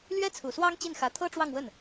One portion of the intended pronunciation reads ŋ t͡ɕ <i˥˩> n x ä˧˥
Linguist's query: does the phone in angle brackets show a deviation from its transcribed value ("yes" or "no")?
no